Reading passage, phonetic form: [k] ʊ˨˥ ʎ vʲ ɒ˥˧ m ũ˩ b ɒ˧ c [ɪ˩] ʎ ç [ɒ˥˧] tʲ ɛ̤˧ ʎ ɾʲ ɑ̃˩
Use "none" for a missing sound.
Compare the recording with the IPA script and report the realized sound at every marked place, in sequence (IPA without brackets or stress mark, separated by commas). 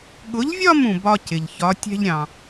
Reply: ɠ, ɪ˩, ɒ˨˥